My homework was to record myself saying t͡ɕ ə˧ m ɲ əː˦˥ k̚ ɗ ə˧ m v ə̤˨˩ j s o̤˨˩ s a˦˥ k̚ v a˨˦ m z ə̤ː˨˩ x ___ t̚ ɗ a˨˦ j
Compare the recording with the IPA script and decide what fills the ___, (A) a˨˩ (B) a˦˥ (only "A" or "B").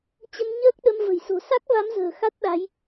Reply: B